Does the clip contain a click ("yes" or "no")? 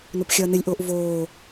no